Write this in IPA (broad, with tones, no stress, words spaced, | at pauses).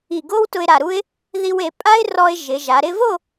i˧˩ɡo˥w tʊ˧ɪ̯ɾa˧˩ɾu˥ɪ̯ | ði˧we˩˧ pʼa˥ɪ̯rɔ˧ɪ̯ ʒɪ˩˧ʒa˩˧ ɾɪ˧vo˥˧